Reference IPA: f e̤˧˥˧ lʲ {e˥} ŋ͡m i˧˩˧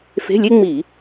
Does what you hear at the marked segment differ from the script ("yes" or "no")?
no